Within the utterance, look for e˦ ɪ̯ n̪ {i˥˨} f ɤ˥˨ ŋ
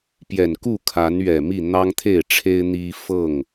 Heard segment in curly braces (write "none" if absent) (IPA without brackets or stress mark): i˦